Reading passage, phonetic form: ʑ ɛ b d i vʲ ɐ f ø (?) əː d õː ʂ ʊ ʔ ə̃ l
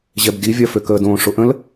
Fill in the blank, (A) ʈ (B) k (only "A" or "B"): B